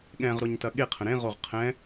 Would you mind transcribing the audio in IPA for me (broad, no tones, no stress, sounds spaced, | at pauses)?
ɠ ɛ̃ ʁ ɾ o ɲ t ɐ ɠ e qʰ ə̃ ɾ ẽ ʁ o ʁ qʰ ɛ̃